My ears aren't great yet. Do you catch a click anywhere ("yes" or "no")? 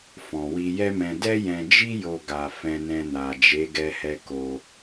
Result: no